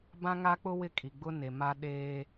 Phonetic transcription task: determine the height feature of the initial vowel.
low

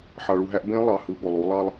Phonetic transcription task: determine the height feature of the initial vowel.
low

